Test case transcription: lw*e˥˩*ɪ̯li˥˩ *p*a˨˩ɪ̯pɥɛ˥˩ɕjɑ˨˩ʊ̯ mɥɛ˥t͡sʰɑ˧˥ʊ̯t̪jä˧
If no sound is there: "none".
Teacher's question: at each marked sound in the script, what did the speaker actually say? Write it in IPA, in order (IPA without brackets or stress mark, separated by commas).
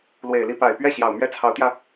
e˨˩, p